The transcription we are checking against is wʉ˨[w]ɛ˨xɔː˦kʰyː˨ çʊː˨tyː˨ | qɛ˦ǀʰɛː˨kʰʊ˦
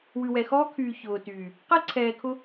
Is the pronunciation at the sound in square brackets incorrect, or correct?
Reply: correct